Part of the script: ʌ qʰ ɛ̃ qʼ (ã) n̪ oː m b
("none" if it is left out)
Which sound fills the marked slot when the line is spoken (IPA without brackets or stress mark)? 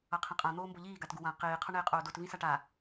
ã